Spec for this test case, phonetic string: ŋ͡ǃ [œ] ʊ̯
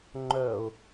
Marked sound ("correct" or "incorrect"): correct